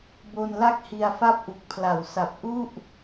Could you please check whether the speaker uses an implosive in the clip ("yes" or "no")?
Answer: no